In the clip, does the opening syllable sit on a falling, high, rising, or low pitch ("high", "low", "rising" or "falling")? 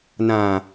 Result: low